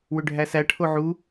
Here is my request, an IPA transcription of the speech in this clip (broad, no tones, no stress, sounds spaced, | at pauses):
w ʏ ɖʱ æ s æ ʈʰ o ʕ u